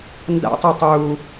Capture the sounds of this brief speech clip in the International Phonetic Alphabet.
n d a̰ tˤ a tˤ uː

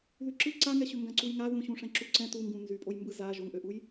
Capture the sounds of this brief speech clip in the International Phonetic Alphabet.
ð y ǁ ɯ ǀ a ŋ ɛ ɕ ʏ ŋ ɡ ã ǀ u j ŋ a ð ũ ɕ ũ ʂ ɛ̃ ǁ u ǀ ɛ̃ t u ŋ ɡ ũ n z y pʼ o j m b ɯ z a ʒ o ŋ ʔ ø ʔ u j

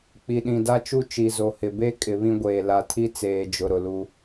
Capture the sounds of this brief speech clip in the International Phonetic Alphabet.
k͡p i˨ ɗ ĩ˨ d a˦ t͡ʃ u˦ t͡ʃ i˨ z o˨ h ɪ˨ b e˦ kʼ ɪ˨˦ β ĩ˦ ɡʷ eː˨ l a˨ tʰ i˦ t͡s eː˨ d͡ʒ ʊ˨ ɾ ʊ˨ l u˦

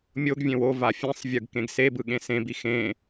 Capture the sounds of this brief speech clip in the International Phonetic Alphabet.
mʲ o ɡ vʲ ẽ w o v a fʲ ẽ sˤ vʲ ɯ ɡ k ẽ ɡ s e b ɯ ɠ ẽ s ẽ b i x ẽ

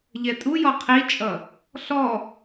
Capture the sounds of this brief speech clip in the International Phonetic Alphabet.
ʎ ɛ tʼ u j ɔ qʰ i t͡ʃʼ ʌ | ɬ ɔ

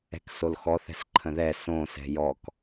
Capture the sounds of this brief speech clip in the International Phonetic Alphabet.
ɛ̤ k s o l x ɔ θ ɛ̤ s ǃʰ ə̃ ð ɛ s õ s ɛ̤ j ɔ k

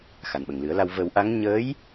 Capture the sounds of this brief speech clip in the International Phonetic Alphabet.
x a˨˩ n ɓ ə˨˩ ŋ l ɨ˨˩˦ ə̯ l a˧ w v ə˨˩˦ w ʔ a˧˥ ŋ ɲ əː˧˥ j

